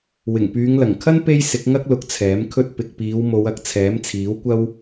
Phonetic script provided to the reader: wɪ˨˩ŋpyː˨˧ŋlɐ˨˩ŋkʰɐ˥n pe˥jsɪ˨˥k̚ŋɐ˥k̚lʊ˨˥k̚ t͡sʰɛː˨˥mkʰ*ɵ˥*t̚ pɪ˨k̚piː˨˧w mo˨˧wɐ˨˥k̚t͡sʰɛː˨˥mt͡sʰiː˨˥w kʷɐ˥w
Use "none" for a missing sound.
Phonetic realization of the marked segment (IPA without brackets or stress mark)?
ɵ˥